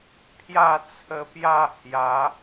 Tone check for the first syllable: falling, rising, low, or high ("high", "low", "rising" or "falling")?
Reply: falling